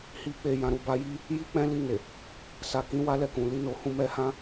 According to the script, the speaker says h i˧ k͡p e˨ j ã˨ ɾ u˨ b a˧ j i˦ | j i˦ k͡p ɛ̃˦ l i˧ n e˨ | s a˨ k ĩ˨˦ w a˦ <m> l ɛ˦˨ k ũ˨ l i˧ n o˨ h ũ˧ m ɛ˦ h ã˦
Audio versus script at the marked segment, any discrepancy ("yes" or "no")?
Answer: yes